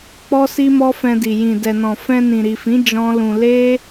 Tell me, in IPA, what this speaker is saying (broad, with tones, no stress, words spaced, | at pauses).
k͡pɔ˦ si˦mɔ˦fɛ̃˧di˨ jĩ˨ dɛ˨nɔ̃˨ fɛ̃˧nĩ˨ɾi˨fĩ˨˦ d͡ʒɔ̃˦lũ˧ le˦